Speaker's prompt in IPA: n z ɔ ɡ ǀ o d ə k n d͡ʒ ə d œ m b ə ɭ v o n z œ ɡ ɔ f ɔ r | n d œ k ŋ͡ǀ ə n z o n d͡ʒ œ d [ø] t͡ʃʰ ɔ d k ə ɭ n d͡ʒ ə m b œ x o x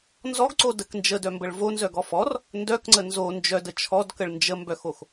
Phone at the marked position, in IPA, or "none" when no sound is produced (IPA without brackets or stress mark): ə